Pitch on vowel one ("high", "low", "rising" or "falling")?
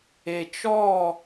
low